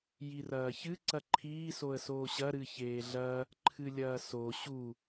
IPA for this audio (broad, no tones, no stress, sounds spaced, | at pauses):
j i r ɐː ç ɨ ǀ ɐ ǃʰ iː s o ə̯ s oː ɕ ɐ ɾ ɨ ç eː ɮ ɐ | ǃʰ ɨ lʲ ɐː s o ɕ u